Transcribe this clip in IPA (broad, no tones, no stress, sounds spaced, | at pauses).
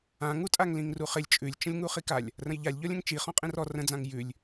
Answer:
ã ŋ u tʼ a ŋ l ĩ ŋ r u χ ɪ lʲ t͡ʃʼ ʉ lʲ t͡ʃ ə̃ lʲ ŋ u χ i k a lʲ | r ə̃ j ʎ a lʲ ʎ ɔ lʲ ə̃ ŋ t͡ʃ i χ ɔ̃ qʼ ĩ r ɔ r ə̃ d͡z ã ŋ j ʉ lʲ